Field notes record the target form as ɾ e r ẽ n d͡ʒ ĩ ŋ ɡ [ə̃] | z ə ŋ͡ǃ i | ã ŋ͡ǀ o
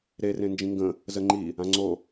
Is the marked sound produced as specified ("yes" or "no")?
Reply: yes